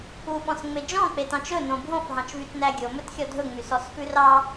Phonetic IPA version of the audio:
uɓɔ̃sŋ͡me d͡ʒɔ̃k͡petɑ̃t͡ʃ ɵnõ bʱõfɦɑ̃t͡ʃvytnæ ɡʲomɵtxʲɔ dʱɵŋ͡mysɔsfʉ rɑ

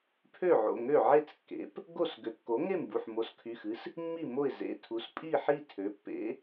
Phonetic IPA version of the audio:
pʰø˥˩ʕo̰˩˧˩ ŋø˥˩ʕe˥˩t͡skːḛ˩˥p | ɡo˥˩s ɡø˩˥kːo˩˥ŋe˥˩mbu˩˧˩ħ mo˩˥skʰy˩˧˩xɨ˩˥s | mːi˥˩mo˥˩ɪ̯ zḛ˩˧˩tʰu˩˥s pʼi˥˩ħi˥˩ tʰø˩˥pːḛ˩˥

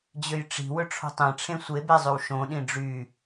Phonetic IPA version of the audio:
d͡ʑøjʈ͡ʂi̤ wɵʈ͡ʂʰo̤tˤẽ ʈ͡ʂʰẽsʷebezˤʉw ʃõɗĩ ɖ͡ʐy

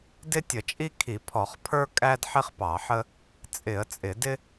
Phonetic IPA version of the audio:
dɪ˥tʲə˧˩˧t͡ʃʼi˥ kʰi˧˩˧pʰɔ˧˩˧χpʰə˞˥ kʼæ˥dħɪ˥χpɑ˧˩˧ħə˥ | t͡sʼɪ˧˩˧ə̯t͡sʼɪ˧˩˧ dɪ˥

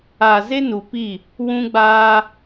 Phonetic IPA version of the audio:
a˨ze˦nu˨pi˦˨ | wũ˦ɡ͡baː˦

